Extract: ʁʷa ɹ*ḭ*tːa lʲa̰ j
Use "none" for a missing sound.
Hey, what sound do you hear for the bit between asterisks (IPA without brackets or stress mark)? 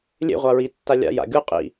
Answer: i